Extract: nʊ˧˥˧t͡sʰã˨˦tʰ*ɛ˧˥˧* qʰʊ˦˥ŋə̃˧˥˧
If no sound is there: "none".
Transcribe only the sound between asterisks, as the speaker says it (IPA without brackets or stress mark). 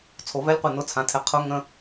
ɛ˨˦